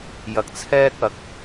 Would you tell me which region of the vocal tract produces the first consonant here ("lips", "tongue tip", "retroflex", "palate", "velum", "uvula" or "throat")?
palate